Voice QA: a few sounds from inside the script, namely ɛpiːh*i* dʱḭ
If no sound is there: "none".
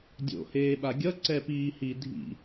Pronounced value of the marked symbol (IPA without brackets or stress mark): i